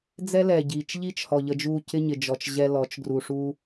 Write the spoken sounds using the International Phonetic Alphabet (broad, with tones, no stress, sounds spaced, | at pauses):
d͡z ɛ˦ l ɛ˨ ɟ i˨ t͡ʃ ʎ i˦ t͡ʃ h ɔ˨ ʎ ə˨ d͡ʒ u˨ c ɪ˦ ɲ ɪ˨ d͡ʒ ɔ˨ t͡ʃ ʑ ɛ˦ l ɔ˨˦ t͡ʃ ɡ r u˨ ʂ u˦